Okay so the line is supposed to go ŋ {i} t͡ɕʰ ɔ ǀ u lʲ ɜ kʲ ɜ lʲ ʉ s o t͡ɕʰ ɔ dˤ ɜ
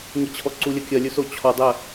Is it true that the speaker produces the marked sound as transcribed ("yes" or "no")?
yes